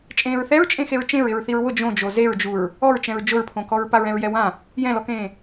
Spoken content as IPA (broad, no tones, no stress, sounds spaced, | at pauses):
t͡ʃʼ ẽː ɹ θ ɛ ɹ t͡ʃʼ ẽ x e ɹ t͡ʃ ẽ ɹ ɪ ɹ θ i ɹ w ʊ d͡ʒ õ d͡ʒ o z e ɹ d͡ʒ u ɹ | ɔ ɹ t͡ʃ ɛ̃ ɹ d͡ʒ ʊ ɹ pʰ õ k ɔ ɹ p a ɹ ɛ̃ ɹ j ɛ w ã | j ɛ̃ l ɔ k ẽː